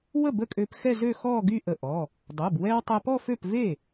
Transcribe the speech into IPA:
w ə˥˩ b ə˥˩ kʼ ø˧ p x ɛ˥˧ z ø˥˧ x ɔ˥˧ ɡ y˥˧ ʔ ə˧˩ ʔ ɔ˩˧˩ | dˤ o˩˧˩ b w ɛ˧ w tˤ ɛ˧ p ɔ˥˧ f ø˥˩ p v e˥˩

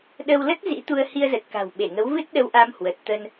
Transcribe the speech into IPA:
ɗ ə˧ w l ə˦˥ t̚ z ḭ˧˥ t̪ u˧ ə̯ h i˧ ə̯ z ə˨˩ t̚ k a̤˨˩ w ɓ e˧˩ ŋ ə˨˦ w v ɨ˦˥ t̚ ɗ ə˧ w ʔ a˧ m h w ə˨˩ t̚ t̪ ə˧ n

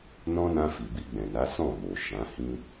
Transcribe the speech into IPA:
n ɔ̃˦ n ã˧ f i˨ b i˧ ɡ͡b ɛ̃˨ n a˨˦ s ɔ̃˦˨ m o˨ ʃ ã˨˦ h ĩ˦

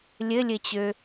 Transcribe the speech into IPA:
lʲ ɘ lʲ ɘ t͡ɕ ø

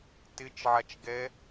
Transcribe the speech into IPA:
t ɪ t͡ʃ ʕ a t͡ʃ ɡ ɛ

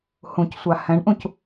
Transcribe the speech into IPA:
h ũ c sʷ a h ɛ̃ ɳ ʔ ũ c

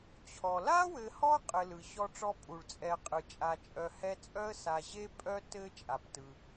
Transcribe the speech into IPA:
t͡ɕʰ ɔ˩ l a˥ w ɘ˨ h ɔ˦ qʼ ɘ˨ l ɯ˩ ɕ ɔ˦ ʈ͡ʂ ɔ˦ pʼ u˩ ɭ t͡sʼ ɛ˨ qʼ ɯ˩ t͡ʃʼ a˨ t͡ʃʼ œ˨ h ɛ˦ t͡sʼ œ˥ ə̯ s a˨ ʑ e˥ pʼ œ˥ t ɘ˥ t͡ʃʼ a˩ p t ɯ˩

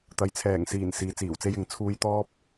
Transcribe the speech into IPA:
t̪ ɐ˨ j t͡sʰ ɛː˨˩ ŋ s iː˨˩ n s iː˨˧ t͡s iː˨˩ w t͡s e˥ j ɪ˨˧ ŋ t͡sʰ uː˧ j t̪ ɔː˥ p̚

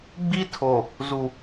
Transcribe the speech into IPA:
ɡ͡b i˦ tʰ o˨ | z u˨

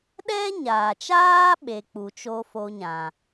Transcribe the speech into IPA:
ɗ ɛ˦ ɲ aː˨ t͡ʃ aː˦ ɓ e˧ k͡p u˨ t͡ʃ o˦ f o˧ ɲ ã˨

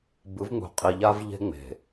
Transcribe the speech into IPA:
b ɯ˨˦ v ŋ͡m ṳ˨ qʼ i˨ ʎ a˦ v ʎ e̤˦ ŋ͡m e̤˨

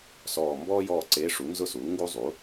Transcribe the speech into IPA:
s ɔː˦˨ m b ɔː˥ j ɔː˦˨ ǀ eː˧˥ ʂ u˩˥ n z ʊ˥ s uː˩˥ ŋ ɡ u˥ zˤ u˩˥

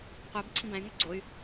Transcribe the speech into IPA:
qʷ ɛ b ǀʰ ĩ b æ̃ y̯ ŋ ɛ ɡ͡ǀ o y̯

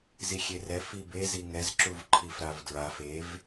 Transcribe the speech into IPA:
z i xʲ e r ɛ f i b e z i ŋ ɛ z ǁ u v ǃʰ i f ɾ a v d ɹ a f e v

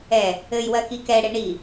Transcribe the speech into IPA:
ɛ | ɘ j w ɜ k i k ɛ ɽ e ɳ i

